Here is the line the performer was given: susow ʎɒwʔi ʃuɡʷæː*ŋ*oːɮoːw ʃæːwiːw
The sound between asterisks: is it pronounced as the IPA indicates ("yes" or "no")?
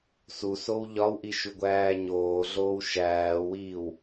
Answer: no